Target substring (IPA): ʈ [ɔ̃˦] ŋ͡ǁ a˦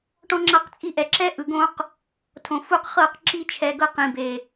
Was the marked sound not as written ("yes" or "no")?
no